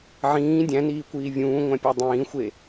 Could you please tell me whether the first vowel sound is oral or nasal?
nasal